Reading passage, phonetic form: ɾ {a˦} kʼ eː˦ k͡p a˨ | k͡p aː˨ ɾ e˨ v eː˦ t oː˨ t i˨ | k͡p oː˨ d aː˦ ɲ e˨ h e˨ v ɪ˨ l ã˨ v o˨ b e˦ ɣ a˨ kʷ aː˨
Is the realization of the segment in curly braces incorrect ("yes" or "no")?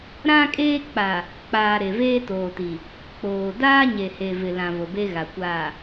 yes